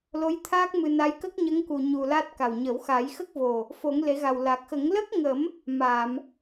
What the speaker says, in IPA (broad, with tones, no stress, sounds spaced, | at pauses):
l o˧˥ j t̪ʰ aː˦˥ k̚ m ɨ˧ n a˧˥ j k ə˦˥ k̚ ɲ ə˧˥ ŋ k u˧ ɲ u˧ l a˦˥ t̚ k a˨˩ w ɲ ə˨˩˦ w x a˨˩˦ j x ə˦˥ k̚ v o˨˩ | f o˨˩˦ ŋ l e˨˩˦ ɣ a˨˩ w l a˨˩ k̚ x ə˨˩˦ ŋ l ə˦˥ k̚ ŋ ə˨˩˦ m | m aː˨˩˨ m